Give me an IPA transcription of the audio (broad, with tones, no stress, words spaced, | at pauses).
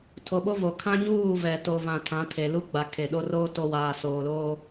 tʰo˨ɓo˦vo˨kʰã˦ ɲuː˦˨vɛ˨ to˨vã˨ tʰã˨˦tʰe˨lu˦ɡ͡ba˨ kʰe˨ ɗo˦roː˦ to˦ waː˨soː˨loː˦